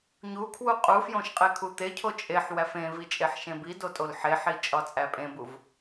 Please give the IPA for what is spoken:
ɲ u kʰ w u qʼ u f j õ ʃ qʼ e kʰ u t̪ e cʰ o t͡ʃʼ e ħ w æ f ẽ v i t͡ʃʼ e ħ ʃ ẽ b i d o tʼ o l ħ e ħ i t͡ʃʼ ɒ t͡sʼ æ pʼ ẽ b u v

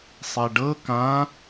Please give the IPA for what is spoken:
sˤ e ɖ ɤ k ã

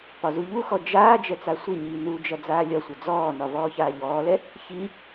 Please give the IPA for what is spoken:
p ɒ z u ʎ u x ɔ d͡ʒ aː d͡ʒ ɛ t͡s a sʷ i ɲ iː n u d͡ʒ ɐ d͡z aː lʲ ɒ sʷ ɐ d͡z ɔː n ɒ v ɔː ç aː ʎ ɔː l ɛ | ç i

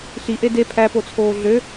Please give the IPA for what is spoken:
ɬ i ʔ e d e pʰ æ p o t͡sʰ oː ɮ ø

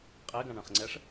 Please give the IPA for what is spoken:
qʼ e ɡ ã ɳ ə̃ χ ŋ͡ǀ ɛ ʂ

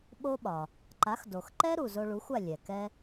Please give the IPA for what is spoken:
ɓ o˥ ɓ ɒ˩ | ǃ a˩˥ x d o˩ x ǃ ɛ˥ ɾ u˩ z o˧ ɭ u˩˥ xʷ a˥˩ lʲ ɛ˩ k ɛ˥

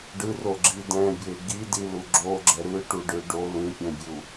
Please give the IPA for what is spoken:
ɖ ɯ r o ɡ͡ǁ i d ɛ̃ bʲ e ɡ i d i l u ɡ͡ǁ o ɡ͡ǁ ɛ ɾ ɯ ʈ u ɖ ɯ ɖ o l ĩ pʲ ɛ̃ bʲ u

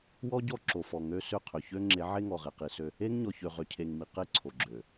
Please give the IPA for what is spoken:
w ɔ˦ ɟ ɔ˦˨ ǁ o˨ f ɔ˨ ŋ ø˦ s ø˦˨ qʰ ø˨ ç ø˦ ŋ͡ǁ e˨˦ ʕ e˦ ŋ ɔ˨ ʁ e˨ q i˨ s ø˦ | e˦ ŋ ɲ ɔ˨ ç ø˨ ʁ ø˨ cʰ e˨ ŋ m i˨ q e˦˨ ǀʰ o˨ ɡ͡ǁ ø˨

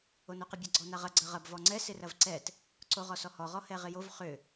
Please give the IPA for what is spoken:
o n o q ɪ bʲ ɐ ɡ͡ǀ ɔ n a ʁ ɐ ɡ͡ǀ ɐ ʁ ɐ b v ɔ ŋ͡ǀ ɛ s ɪ r ɐ v ǀ ɛ t | ǀ o ʁ ɔ s ɔ h ɔ ʁ ɔ h ɛ ʁ ɪ j o v χ ʏ

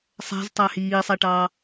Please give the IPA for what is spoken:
sˤ æ̤ z tˤ æ h iː sˤ ɛ ʈ ɑː

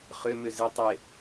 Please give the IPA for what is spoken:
χ ø m ʏ z ɪ tˤ ɪ

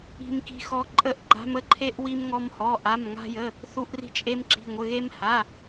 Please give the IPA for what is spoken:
i̤˧ m k i̤˧ x ɔ˧ ǃʼ ə˧ ʔ ɡ͡ǃ a̤˧ m ə˧ ǃʰ e˧ ʔ w i˧ m ŋ ɔ˧ m h ɔ˩˧˩ ʔ a˩˧˩ m ŋ a̤˧ j ə˩˧˩ | θ u˧ ʔ r i̤˧ t͡ʃʼ e˧ m ǁ i̤˩˧˩ ŋʷ ə˩˧˩ ɣ e˧ m h a˩˧˩

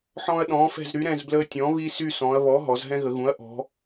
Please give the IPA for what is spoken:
ħ ɔ̃˦ ɐ̯ ɗ ɔ̃ː˩˥ f ɛ̤˦˨ z ɾ y˩˥ ɾ ɛ̃˦˨ z b l əː˦ tʲ ɔ̃˩˥ β i˦ s y˦˨ s ɔ̃˩˧ ɐ̯ β ɔ˩˥ ɦ ɔ˩˧ z ɦ ɛ̃˦ ɣ ə˩˧ ɣ ũ˩˥ ɐ̯ ʔ ɔ̤˩˧

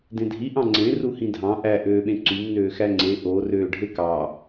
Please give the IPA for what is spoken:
d ẽ dʱ i ʔ ɑ̃ ŋ͡ǀ ẽ r u h ĩ dʱ ɑ̃ ʔ æ ʔ øː ɓ ẽ ǀ y m n øː x æ ŋ͡ǀ e ʔ o r øː ɖʱ e k ɑ

